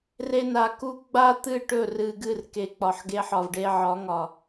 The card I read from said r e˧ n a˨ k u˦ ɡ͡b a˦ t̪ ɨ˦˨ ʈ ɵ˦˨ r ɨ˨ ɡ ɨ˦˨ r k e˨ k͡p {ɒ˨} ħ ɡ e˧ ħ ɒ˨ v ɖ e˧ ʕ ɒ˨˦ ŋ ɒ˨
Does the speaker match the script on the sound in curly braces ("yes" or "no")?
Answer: yes